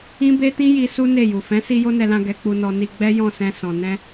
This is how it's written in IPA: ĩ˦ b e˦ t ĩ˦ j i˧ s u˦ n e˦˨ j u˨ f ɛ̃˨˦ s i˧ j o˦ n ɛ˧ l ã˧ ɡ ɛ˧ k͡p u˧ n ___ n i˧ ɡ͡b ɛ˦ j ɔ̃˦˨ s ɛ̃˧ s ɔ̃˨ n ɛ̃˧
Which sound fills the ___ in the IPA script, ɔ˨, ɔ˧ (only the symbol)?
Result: ɔ˧